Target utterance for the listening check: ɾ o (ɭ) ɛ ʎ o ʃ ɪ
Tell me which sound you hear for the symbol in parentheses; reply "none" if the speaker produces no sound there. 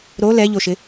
l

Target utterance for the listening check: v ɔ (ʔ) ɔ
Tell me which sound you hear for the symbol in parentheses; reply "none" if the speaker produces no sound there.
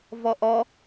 ʔ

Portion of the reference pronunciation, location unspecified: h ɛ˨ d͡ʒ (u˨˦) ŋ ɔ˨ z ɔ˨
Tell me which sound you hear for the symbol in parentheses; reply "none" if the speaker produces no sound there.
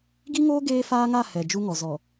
u˦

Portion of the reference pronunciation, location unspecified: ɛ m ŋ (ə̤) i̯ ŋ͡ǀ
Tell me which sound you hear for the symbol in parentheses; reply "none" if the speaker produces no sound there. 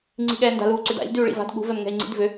ɛ̤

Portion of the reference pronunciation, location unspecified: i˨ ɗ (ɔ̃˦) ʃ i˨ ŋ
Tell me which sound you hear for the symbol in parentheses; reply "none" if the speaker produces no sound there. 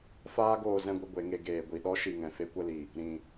ɔ˦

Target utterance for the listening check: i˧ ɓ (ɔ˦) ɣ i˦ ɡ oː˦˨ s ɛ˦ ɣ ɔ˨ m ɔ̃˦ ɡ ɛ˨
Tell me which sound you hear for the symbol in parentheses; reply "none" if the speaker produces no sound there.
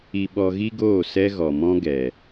ɔ˧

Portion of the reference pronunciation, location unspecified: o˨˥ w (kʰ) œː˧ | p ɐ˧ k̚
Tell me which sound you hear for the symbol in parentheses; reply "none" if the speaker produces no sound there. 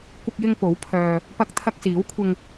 pʰ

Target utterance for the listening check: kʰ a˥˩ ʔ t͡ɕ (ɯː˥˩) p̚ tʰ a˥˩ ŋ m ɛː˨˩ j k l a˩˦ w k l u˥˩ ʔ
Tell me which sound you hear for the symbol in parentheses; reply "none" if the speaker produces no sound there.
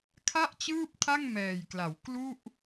ɯː˥˩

